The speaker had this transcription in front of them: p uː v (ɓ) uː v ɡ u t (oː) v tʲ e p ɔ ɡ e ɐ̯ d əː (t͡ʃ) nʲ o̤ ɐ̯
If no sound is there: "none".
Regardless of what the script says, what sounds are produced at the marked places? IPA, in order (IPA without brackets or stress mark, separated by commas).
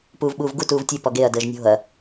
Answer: ɓ, uː, ʒ